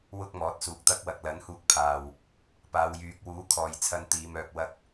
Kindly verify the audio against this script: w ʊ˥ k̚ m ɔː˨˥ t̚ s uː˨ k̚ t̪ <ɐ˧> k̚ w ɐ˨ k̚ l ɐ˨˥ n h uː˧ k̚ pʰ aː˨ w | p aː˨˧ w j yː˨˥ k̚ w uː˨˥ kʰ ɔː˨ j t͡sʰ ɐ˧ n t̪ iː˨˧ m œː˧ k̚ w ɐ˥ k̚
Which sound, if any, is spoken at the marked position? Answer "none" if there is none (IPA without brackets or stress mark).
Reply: ɐ˥